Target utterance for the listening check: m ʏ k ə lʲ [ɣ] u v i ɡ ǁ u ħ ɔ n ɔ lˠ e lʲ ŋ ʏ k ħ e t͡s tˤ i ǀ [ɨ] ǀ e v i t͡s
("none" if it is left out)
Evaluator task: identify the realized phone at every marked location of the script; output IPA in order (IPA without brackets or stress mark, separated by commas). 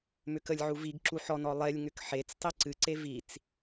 ʕ, ɨ